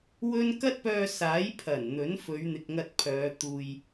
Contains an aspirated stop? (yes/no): yes